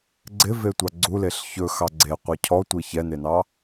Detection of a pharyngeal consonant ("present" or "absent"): absent